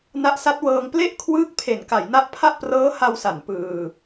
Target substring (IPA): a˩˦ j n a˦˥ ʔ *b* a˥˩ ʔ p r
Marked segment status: incorrect: pʰ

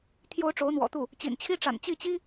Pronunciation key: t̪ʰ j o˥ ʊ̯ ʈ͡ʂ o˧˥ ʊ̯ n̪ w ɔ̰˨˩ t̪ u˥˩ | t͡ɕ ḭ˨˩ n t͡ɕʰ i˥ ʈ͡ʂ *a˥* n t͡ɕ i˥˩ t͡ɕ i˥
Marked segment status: incorrect: a̰˨˩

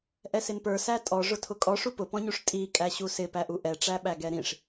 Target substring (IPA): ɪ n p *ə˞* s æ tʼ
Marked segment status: correct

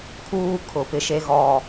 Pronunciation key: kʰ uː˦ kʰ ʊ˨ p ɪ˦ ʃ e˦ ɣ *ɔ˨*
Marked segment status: correct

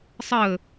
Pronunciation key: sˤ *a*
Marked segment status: incorrect: ə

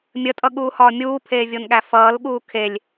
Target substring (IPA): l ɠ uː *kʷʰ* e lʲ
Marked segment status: incorrect: kʰ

